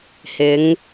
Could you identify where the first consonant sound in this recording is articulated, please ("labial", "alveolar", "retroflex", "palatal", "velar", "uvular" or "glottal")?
glottal